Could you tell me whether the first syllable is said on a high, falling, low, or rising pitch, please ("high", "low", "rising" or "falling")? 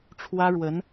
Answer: high